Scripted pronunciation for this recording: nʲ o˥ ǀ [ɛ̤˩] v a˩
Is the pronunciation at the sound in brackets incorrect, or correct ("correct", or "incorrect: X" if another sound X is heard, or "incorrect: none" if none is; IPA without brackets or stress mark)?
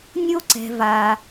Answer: correct